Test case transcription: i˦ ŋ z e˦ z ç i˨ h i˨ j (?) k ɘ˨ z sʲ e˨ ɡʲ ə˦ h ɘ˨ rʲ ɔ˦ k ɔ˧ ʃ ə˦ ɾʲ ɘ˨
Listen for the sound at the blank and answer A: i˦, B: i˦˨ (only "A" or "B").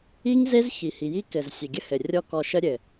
A